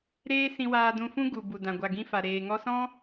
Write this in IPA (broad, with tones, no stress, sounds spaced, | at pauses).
ɾ eː˦ s ĩ˧ w aː˧ d ũ˧ f ũ˦ ɡ u˨ b u˨ d ã˨ ɡʷ a˨ ɡ ĩ˧ f a˨ ɾ eː˨ ŋ ɔ˧ s ɔ̃˦